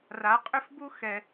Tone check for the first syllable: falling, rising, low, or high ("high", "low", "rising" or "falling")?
rising